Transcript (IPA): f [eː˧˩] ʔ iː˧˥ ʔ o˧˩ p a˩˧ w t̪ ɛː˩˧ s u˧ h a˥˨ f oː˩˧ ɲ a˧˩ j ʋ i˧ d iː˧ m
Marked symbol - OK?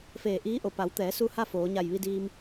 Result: yes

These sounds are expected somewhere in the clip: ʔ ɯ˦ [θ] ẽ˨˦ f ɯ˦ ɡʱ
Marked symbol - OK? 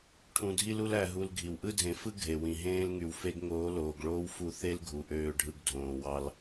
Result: no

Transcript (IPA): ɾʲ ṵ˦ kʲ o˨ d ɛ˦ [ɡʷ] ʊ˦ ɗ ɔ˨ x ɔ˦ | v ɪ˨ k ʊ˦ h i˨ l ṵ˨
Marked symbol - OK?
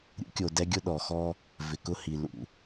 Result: no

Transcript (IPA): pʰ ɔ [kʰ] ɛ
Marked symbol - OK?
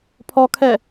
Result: yes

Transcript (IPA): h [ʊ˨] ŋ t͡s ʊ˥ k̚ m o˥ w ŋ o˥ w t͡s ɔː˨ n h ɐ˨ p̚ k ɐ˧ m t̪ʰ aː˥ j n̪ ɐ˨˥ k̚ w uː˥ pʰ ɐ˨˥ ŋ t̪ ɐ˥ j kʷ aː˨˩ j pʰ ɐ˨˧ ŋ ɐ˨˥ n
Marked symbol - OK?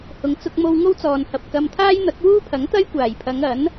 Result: no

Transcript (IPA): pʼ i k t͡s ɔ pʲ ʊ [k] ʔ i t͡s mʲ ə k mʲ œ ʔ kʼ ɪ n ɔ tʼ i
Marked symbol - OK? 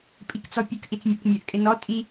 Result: yes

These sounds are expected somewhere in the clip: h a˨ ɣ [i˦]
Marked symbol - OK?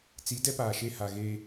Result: no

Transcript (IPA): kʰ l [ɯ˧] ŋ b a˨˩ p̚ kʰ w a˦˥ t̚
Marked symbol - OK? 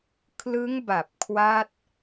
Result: no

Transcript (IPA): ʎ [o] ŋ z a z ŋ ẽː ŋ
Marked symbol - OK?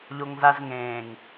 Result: yes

